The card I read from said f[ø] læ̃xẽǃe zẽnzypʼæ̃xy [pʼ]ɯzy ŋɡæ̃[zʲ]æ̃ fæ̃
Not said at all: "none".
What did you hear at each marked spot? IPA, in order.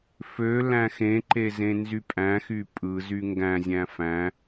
ø, pʼ, zʲ

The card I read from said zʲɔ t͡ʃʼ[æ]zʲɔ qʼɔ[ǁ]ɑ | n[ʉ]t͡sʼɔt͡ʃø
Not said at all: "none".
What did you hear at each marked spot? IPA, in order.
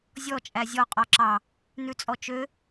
æ, ǁ, ʉ

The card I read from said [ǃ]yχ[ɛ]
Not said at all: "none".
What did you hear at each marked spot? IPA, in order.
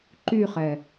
ǃ, ɛ

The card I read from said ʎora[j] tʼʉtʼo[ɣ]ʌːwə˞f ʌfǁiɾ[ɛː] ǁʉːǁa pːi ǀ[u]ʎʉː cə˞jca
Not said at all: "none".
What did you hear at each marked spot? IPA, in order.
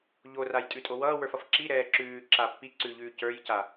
j, w, ɛː, ʉ

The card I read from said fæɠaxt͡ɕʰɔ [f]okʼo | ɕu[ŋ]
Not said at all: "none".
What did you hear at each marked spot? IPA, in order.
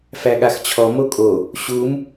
m, m

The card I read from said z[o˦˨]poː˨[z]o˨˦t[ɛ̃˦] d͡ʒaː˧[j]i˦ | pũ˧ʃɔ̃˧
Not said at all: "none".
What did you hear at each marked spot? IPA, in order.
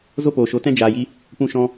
o˦, ʃ, ɛ̃˦, j

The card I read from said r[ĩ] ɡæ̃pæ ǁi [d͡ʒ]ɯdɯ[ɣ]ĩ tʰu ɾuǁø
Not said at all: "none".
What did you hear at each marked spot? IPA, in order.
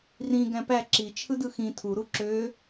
ĩ, t͡ʃʰ, x

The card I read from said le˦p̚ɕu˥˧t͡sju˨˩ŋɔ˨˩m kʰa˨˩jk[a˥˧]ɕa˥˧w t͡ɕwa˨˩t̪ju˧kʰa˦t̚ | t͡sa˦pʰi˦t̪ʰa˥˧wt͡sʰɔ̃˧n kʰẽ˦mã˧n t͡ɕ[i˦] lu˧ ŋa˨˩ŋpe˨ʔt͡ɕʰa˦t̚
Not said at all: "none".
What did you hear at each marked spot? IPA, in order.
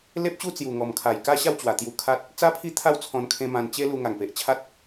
a˥˧, e˦

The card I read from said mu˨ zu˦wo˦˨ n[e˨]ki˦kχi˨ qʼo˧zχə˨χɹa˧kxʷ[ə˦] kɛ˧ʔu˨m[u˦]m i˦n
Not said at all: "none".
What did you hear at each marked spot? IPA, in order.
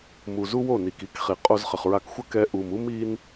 i˨, ə˦, u˦

